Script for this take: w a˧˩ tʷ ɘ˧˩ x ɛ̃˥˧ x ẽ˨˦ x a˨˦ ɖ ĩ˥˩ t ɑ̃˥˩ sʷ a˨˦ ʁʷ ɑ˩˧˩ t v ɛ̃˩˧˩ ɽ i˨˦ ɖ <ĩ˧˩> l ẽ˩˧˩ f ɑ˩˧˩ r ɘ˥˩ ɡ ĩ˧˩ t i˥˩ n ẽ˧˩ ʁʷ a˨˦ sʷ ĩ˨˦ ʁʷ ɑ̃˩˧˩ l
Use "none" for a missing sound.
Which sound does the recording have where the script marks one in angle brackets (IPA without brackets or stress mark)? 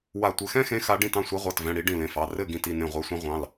ĩ˧˩